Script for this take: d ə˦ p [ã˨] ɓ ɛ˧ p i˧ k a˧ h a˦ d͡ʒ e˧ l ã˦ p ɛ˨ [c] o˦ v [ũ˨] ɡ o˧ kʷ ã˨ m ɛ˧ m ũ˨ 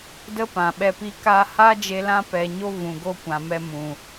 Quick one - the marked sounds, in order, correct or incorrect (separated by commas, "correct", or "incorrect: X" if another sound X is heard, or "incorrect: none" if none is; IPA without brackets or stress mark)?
correct, incorrect: ɲ, correct